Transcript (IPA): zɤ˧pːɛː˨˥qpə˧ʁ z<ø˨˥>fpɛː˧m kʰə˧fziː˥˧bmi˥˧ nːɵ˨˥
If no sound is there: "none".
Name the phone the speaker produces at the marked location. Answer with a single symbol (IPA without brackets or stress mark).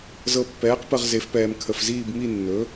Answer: e˨˥